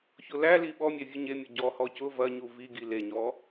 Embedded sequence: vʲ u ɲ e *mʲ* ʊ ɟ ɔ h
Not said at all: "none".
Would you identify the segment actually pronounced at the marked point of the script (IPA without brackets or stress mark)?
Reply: mʲ